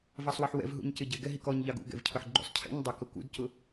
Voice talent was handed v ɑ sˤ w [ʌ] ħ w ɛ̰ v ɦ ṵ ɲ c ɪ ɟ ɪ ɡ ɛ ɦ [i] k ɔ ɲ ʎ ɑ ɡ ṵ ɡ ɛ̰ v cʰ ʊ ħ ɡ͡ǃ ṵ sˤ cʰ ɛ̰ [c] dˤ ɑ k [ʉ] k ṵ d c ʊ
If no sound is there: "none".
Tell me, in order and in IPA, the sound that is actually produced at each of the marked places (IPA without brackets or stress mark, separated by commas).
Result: ʌ, i, ɲ, ʊ